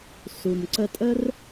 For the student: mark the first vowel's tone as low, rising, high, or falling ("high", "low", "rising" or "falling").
low